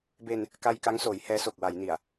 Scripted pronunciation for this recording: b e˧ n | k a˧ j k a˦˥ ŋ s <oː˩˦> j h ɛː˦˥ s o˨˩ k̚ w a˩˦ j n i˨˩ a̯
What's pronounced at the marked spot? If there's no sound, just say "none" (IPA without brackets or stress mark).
oː˩˦